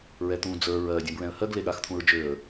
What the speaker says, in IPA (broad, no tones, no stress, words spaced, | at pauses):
ɹɛt̪ũ d͡zə˞ ɹɜ dʲɛ̃bɹɛ̃ə̯hɜɡ leɠaxt̪ʰũɹd͡ʒøə̯